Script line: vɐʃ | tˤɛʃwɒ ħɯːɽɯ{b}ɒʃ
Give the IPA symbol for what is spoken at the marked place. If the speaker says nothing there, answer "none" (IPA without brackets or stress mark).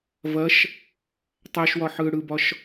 b